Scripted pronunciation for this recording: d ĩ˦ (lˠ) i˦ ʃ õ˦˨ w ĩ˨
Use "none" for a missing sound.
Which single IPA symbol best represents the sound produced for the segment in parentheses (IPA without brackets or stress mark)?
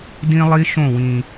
lˠ